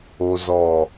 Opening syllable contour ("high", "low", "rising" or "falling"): low